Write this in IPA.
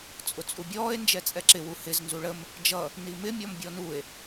t͡sʼ ʊ t͡sʼ u bʲ ɔː e̯ n d͡ʒ ɛ t͡sʼ ɛ ǁ ɪ w u h ɪ z n z u ɭ ə m | d͡ʒ ʌ | n i m ɪ mʲ ɔ m bʲ ɔ n u e̯

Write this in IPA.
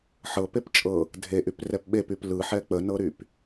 ħ ɤ p e p t͡ʃʼ ɤ | dʱ e ʔ y p r ɛ p ɓ e p y p l ɯ ħ ɛ k͡p ə n ɤ ɾ y p

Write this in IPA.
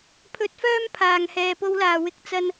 pʰ ɵ˨˥ t̚ f œː˧ m pʰ aː˨ ŋ h ɛː˨ p o˨˧ w l aː˨˩ w ɪ˨˥ k̚ t͡s ɐ˥ n

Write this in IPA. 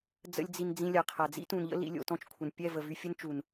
d͡z ə̰˦ lʲ d͡z i˧ n d͡z ĩ˧ lʲ a˨ qʰ a˨ d͡z ḭ˦ t ũ˨ n ʎ ə̰˦ l ḭ˧ lʲ o̰˧ t ɔ̃˧ t͡ʃ kʷʰ ə˨ n pʲ ɛ˦˨ v ə˨ v y˧ fʲ ə˦ n t͡ʃ u˨ n

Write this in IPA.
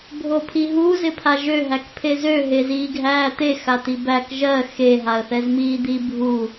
bʱ o pʰ i ɦ u z ɪ pʰ a ʒ ø ɦ æ k pʰ e z ø ɦ e z iː ɡʱ æː t̪ e x a t̪ i b æ k ʒ ɜ x e ɦ a ə̯ θ ɛ z m iː d̪ i bʱ u

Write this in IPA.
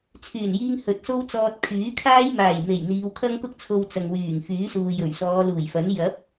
t͡sʰ yː˨˩ n j iː˧ ŋ h ɵ˨ t̚ s o˥ w t͡s ɔː˧ t̚ kʰ yː˨˥ kʰ aː˥ j m aː˨˩ j m e˨˩ j n̪ iː˨˧ w kʰ ɐ˥ ŋ k ʊ˥ k̚ t͡sʰ o˧ w t͡s ɐ˨ ŋ w yː˨˩ ŋ f yː˨˥ s uː˨ j ɵ˨˩ ɥ s ɔː˨˧ l uː˨˩ j f ɐ˨˥ n j ɐ˨˥ p̚

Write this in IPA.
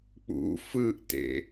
k͡p ṵ f ɯ ʔ t ḛ

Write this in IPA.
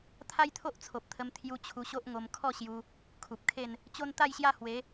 t̪ʰ a˦ j t̪ʰ o˦ ʔ t͡sʰ o˨ p̚ t̪ʰ ə˧ m t̪ʰ j u˧ t͡ɕʰ u˧ ɕ o˦ ʔ ŋ o˧ m kʰ ɔ˥˧ ɕ j u˧ | kʰ u˨ p̚ kʰ e˥˧ n | t͡ɕ o˦ n t̪ a˥˧ j ɕ j a˥˧ h w e˨˦

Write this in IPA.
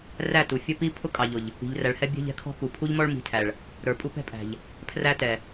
r æ˦˨ t u˨ fʲ ə˦ p i˦ pʰ ʊ˦ kʼ ɑ˨ ʎ ʊ˨ ʎ | i̤˨ ʎ r æ˨ ɭ h ɛ˦ bʲ ɛ̤˦ ʎ ɛ̤˦ kʰ ɔ̤˦ k u˨ pʰ u˦ ʎ m ɔ˦ ɭ m i̤˨ tʰ æ˨ ɭ | ɾ ə˞˨ pʼ u˦ p ɛ̤˦ pʼ æ̤˨ ʎ | pʰ r æ˦ t ɛ˨

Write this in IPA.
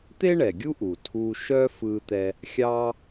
t̪ e˥ ɳ ɛ˩ ɡʲ u˥ ʔ u˩ tʰ u˧ ʃ œ˥ f ɯ˧ t̪ ɛ˧ | xʲ ɑ˥

